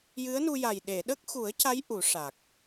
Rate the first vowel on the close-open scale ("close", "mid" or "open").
close